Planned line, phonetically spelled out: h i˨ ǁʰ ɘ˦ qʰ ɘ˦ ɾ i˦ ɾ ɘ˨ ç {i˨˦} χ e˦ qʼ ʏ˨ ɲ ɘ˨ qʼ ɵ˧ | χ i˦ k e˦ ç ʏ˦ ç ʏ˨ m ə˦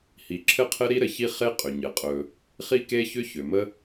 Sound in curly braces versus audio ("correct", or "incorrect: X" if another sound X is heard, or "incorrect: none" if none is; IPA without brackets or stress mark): incorrect: i˦